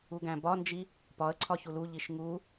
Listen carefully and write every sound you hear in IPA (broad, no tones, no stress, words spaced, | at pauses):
uɡæ̃bɒnd͡ʒi | pɒə̯ ǀʰɒçuluʎiʃ ŋu